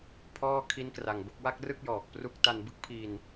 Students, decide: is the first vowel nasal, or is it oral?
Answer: oral